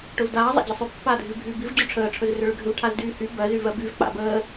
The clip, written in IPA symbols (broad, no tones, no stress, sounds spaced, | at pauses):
ʈ ɵ v d aː zˤ a̰ d͡ʑ ə sˤ ʏ pː aː dʱ y v bʱ yː b i v d͡ʑ ɵ ʈ͡ʂʰ əː ʈ͡ʂʰ ɵ z r ʏ ɭ ʏ ɡʱ ʏ v ʈʰ a z d yː h y b ɜ z y v ɜ b y v k͡p a̰ b əː